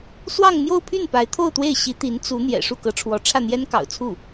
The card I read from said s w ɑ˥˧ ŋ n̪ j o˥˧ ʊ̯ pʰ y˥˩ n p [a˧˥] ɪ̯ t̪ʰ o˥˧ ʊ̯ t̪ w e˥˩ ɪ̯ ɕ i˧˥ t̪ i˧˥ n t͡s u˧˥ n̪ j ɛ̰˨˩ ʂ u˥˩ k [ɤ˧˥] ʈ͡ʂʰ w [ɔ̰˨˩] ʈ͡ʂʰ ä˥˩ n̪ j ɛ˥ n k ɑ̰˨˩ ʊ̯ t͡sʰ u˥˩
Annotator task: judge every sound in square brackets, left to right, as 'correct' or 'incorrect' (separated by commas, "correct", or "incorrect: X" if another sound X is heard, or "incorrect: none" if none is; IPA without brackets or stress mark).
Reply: correct, correct, incorrect: ɔ˧˥